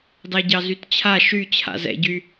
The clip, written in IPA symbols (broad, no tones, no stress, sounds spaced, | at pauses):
d ɑ ɟ ɑ z y t t͡ɕʰ a ʃ y t͡ɕʰ a̰ z ɛ̰ ɟ y